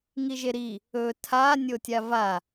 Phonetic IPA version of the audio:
ŋ i ʒ e ɾ i | ɵ tʰ a nʲ o tʲ a v a

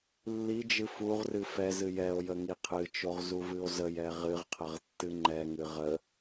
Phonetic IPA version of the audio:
lː i d͡ʒ ɨ f u ʁ r ɨ f ɛ z ɨ j ɛ o̯ j ə ŋ i qʰ ɨ t͡ʃ o ʁ z u v ɨ o̯ z ə j ɛ ʁ ɨ ʁ qʰ ə ʁ tː ɨ ŋ͡ǃ ɛ ŋ ɨ ʁ ə

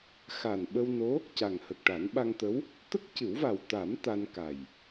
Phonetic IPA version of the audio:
x a˨˩ n ɓ ə˧ w n o˧˥ | c a˨˩ ŋ h ə˨˩ k̚ ʈ a˨˩˦ n ɓ a˧ ŋ t̪ ə˧˥ w | t̪ ə˦˥ k̚ c ɨ˨˩˦ w v a˨˩ w t̪ a˨˩˦ m t̪ a˧ n k a˨˩ j

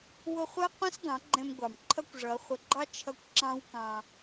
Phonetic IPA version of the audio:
w ʊ˧ χʷ ɜ˦ qʷ ə̃˦ s ɡ ɑ̃˨˦ ɡ͡ǃ ɛ̃˧ m ɡʷ ɑ˨ m ǃʰ ʌ˦ kʷ ʐ ʌ˨˦ χʷ ə˨˦ ɡ͡ǃ ɑ˦ t͡ʃʰ ʌ˧ kʷ ǁ ɑ̃˦ w k ɑ̃˧

